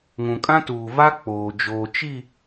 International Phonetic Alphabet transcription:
ŋũ˨kʼã˦tuː˨va˦ k͡poː˨ d͡ʒoː˨t͡ʃi˦˨

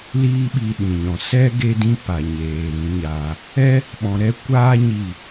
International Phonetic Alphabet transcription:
liː˦ɓi˧ɗĩ˨ɲɔ̃˨ sɛ˦ ɡe˦dĩ˦pa˨ɲeː˨ ɾĩ˨˦ɲaː˧ | ɛ˦ | ɓɔ̃˧ɾɛ˦ kʷaː˦ ɲi˦˨

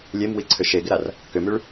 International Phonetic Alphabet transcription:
lʲemwiǀʰʏ ʃeɡɪɾar | kʏmyɭ

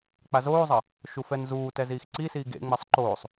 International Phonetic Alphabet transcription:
k͡pazoːzˤɐ | ʃufɛnzuːtɛ ziːxǀisiː ɡḛŋ͡mɛsˤ ǃoːsˤ

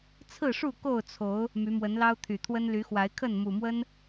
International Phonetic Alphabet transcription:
t͡sʰɹ̩˥˨ʂu˥˨ ko˥˨ʊ̯t͡sʰo˨˦ʊ̯ | my˨˦mwə˨˦nlɑ˦ʊ̯ t̪ʰy˨˩t̪ʰwə˦nly˨˦xwa˨˦ɪ̯ kʰə˥˨nmu˨˩mwə˦n

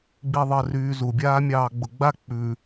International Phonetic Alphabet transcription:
ɡ͡biðˤəːryːzu bʲaːmʲɑːɡ͡bʊɡ͡ba k͡pʉ

